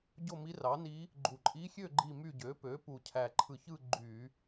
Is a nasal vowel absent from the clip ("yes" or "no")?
yes